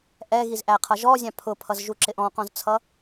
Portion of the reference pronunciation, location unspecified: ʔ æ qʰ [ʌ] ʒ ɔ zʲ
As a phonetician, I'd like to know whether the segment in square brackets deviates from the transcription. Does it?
no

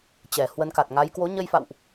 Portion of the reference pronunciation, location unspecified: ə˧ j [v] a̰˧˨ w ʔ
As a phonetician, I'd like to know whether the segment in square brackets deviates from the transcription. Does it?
yes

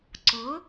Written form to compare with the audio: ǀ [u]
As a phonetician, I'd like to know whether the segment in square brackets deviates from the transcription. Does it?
yes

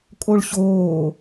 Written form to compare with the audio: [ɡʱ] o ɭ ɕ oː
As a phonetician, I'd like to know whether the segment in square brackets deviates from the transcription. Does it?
yes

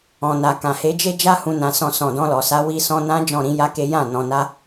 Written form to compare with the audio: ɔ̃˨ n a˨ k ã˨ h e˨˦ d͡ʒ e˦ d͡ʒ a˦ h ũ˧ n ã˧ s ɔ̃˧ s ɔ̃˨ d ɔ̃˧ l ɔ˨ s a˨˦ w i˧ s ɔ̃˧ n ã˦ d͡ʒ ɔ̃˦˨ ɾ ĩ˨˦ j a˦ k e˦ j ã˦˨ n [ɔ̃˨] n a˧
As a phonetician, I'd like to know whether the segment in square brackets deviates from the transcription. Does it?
no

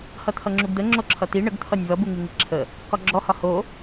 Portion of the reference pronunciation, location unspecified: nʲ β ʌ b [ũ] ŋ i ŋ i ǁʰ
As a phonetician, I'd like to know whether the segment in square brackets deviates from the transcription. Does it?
yes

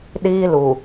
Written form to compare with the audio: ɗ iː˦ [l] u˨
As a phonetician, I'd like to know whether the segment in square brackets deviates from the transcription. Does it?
no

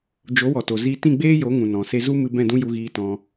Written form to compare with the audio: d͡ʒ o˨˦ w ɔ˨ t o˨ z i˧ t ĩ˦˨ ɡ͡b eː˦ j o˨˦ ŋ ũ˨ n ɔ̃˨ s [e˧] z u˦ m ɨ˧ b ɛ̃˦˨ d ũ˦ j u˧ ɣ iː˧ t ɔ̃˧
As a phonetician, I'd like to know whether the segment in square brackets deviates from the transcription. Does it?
no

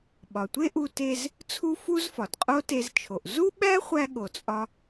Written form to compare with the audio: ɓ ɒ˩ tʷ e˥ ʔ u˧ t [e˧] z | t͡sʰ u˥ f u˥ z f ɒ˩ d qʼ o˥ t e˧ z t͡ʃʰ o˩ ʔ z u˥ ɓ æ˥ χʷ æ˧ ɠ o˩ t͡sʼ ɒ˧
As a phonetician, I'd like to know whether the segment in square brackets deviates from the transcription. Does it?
no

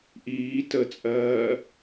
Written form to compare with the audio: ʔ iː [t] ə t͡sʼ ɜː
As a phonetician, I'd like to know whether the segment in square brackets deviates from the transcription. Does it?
no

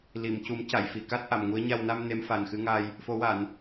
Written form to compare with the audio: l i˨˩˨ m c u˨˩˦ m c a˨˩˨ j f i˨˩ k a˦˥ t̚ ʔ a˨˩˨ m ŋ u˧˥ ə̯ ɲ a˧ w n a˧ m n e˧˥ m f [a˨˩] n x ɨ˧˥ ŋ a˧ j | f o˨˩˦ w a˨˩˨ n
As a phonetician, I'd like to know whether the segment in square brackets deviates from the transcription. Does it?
no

